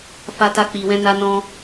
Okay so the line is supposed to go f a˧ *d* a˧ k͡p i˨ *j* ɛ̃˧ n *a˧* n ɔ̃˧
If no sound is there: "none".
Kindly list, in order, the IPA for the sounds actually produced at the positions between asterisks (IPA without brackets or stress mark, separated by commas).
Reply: t, w, a˧